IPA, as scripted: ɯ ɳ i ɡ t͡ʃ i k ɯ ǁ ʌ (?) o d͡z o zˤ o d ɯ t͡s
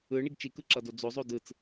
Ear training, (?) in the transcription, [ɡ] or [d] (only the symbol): d